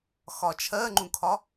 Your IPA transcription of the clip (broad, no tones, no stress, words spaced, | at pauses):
xɒt͡ʃʰɜŋ͡ǃũkʰɒ